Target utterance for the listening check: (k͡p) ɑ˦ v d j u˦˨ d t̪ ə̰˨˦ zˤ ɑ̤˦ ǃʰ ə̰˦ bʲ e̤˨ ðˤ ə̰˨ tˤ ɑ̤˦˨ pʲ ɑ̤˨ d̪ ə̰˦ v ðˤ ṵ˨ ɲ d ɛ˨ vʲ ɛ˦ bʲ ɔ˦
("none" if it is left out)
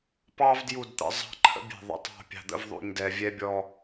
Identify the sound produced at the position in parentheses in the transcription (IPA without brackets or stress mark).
p